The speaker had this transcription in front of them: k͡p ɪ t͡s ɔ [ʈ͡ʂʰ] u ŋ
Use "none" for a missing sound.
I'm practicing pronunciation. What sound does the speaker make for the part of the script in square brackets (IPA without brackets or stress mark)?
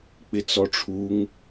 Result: ʈ͡ʂʰ